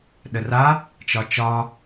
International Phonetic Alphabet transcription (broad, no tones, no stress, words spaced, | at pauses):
ɗəra | t͡ʃɒt͡ʃɒ